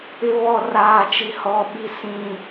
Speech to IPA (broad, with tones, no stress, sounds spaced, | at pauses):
ɪ˦ β ɔ˦ r aː˦ t͡ʃ i˦ h ɔ˦ ɓ i˦ s ĩ˦